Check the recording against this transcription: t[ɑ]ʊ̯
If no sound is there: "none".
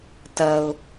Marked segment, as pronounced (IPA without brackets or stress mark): ɐ